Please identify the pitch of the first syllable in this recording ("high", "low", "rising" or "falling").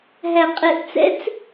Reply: low